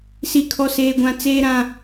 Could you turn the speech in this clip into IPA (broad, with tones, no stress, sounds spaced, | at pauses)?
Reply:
s i˦ kʰ ɔ˦ s eː˦ ɡʷ ã˦ t͡s eː˦ ɾ ã˦